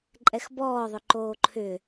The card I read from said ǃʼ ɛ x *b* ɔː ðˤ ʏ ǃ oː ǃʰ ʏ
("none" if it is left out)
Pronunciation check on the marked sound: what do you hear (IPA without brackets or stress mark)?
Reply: b